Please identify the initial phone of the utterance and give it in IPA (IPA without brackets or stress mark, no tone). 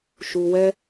ʃ